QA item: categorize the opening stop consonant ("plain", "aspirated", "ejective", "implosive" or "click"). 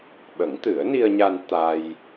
implosive